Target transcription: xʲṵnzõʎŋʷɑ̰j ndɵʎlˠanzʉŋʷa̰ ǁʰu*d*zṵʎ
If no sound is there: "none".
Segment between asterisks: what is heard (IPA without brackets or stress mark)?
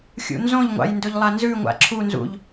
n